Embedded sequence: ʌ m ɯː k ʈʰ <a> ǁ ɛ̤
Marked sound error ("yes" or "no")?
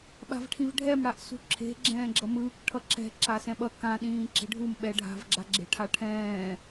yes